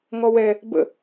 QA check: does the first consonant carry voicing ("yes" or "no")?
yes